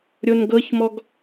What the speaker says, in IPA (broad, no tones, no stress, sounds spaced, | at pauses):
ɾʲ o n ɡ ɤ ç m ɔ ɡ